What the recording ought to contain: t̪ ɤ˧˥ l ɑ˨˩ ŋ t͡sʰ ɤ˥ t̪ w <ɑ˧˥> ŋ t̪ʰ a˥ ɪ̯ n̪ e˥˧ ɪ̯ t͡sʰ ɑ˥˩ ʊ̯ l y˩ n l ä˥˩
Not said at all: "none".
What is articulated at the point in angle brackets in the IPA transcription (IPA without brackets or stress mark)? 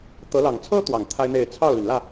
ɑ˨˩